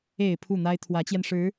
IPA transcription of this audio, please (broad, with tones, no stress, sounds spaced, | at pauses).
e˨˩ ɪ̯ pʰ u˥˩ n̪ a˥ ɪ̯ t̪ʰ w ä˧˥ t͡ɕ j ɛ˧ n ʂ ɻ̩˧˥